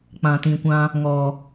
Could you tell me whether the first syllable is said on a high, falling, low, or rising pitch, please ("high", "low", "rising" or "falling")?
low